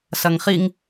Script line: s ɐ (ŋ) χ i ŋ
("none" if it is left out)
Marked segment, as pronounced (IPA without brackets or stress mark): ŋ